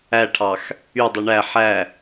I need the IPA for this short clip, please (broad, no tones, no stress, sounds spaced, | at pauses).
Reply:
æ ʈʰ ɑ x | y dˤ ɯ ɳ æ ħ æ